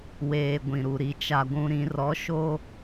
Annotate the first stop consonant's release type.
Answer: plain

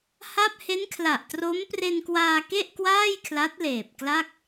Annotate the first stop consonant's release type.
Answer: plain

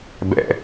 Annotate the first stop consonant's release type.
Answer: plain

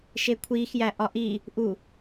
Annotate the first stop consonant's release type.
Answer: aspirated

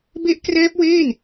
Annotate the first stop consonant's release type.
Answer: plain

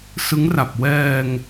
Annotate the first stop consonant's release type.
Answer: plain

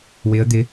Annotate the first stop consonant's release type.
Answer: plain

